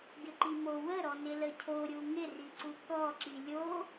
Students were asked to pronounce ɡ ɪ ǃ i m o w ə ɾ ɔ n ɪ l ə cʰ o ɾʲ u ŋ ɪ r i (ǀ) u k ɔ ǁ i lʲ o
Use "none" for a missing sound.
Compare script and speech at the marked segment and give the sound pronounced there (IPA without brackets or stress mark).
ǀ